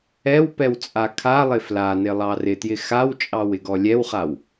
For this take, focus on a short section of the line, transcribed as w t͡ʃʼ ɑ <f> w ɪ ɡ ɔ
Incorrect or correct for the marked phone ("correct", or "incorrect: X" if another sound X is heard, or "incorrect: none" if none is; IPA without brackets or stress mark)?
incorrect: none